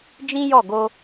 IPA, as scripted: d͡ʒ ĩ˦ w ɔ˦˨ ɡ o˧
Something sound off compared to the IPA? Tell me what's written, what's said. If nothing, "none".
w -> j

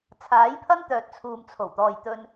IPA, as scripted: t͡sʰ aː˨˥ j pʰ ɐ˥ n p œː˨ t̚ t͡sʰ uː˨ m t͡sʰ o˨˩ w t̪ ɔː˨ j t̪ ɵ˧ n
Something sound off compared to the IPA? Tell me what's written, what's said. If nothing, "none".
p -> t̪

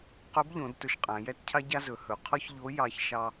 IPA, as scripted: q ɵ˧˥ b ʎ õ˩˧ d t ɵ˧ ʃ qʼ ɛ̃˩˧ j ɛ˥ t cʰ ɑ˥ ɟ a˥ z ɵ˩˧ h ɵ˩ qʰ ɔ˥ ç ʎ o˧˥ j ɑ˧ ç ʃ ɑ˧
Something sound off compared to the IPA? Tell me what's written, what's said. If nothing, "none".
ɛ̃˩˧ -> æ̃˩˧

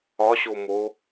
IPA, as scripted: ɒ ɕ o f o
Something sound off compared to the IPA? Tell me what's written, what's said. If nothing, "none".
f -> m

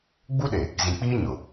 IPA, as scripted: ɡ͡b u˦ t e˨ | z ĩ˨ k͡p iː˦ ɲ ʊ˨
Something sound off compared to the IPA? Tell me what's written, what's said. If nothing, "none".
t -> ɗ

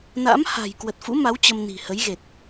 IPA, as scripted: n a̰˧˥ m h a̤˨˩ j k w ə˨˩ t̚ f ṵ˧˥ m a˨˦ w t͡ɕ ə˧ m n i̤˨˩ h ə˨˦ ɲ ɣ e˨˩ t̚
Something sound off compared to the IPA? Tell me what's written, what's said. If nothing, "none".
ɲ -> j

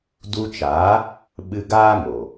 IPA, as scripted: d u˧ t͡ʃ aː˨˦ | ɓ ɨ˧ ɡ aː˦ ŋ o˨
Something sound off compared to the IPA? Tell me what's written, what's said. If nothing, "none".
none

